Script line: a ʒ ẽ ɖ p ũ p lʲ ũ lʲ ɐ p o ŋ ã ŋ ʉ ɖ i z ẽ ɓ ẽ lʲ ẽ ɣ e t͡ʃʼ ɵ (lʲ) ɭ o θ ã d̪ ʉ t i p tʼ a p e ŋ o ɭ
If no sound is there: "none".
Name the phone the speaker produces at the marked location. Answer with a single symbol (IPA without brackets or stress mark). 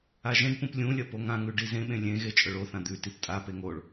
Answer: none